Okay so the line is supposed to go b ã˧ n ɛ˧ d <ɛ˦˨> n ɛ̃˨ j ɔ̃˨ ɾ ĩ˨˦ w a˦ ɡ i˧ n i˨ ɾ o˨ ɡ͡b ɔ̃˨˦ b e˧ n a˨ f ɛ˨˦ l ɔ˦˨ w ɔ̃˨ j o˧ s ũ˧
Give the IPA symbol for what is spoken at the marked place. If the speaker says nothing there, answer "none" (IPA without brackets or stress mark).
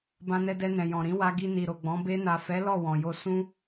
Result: ɛ˧